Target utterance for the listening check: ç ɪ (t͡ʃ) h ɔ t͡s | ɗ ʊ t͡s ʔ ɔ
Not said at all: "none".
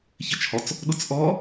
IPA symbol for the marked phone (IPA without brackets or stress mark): t͡ʃ